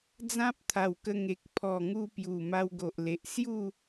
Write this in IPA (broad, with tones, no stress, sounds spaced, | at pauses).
d͡z ã˦ p̚ t̪ʰ a˨˩ w k ə˧ ŋ e˨ k̚ pʰ ɔ˨˩ ŋ u˧ p j u˨˩ m a˧ w ɡ o˨ ʔ l e˨ ʔ s j u˥˧